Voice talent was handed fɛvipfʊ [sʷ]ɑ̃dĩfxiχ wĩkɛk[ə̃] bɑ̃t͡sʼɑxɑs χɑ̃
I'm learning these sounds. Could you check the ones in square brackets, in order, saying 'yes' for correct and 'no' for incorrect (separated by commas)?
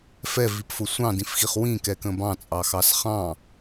yes, yes